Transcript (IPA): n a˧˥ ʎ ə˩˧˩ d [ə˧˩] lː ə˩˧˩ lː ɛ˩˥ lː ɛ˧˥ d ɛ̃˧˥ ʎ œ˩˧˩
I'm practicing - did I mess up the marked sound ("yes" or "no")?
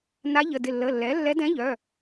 yes